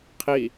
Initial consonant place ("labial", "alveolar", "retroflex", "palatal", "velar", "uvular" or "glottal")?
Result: uvular